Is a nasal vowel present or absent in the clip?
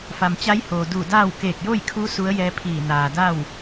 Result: absent